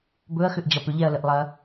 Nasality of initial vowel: oral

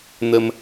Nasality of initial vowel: oral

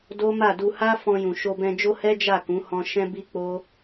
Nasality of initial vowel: oral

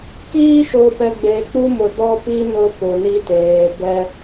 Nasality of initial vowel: oral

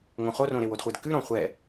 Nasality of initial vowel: nasal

